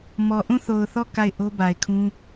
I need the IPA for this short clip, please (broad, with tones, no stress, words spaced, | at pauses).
mɔ˨ʔũ˦˨θo˨ʊ̯θɔ˦˨ ka˦˨ɪ̯ ʔo˦ba˨ɪ̯kʰũ˦